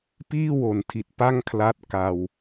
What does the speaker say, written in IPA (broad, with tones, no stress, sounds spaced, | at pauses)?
p iː˥˩ w o˨˩ n tʰ i˨˩ t̚ p a˥˩ ŋ kʰ l a˦˥ t̚ k a˧ w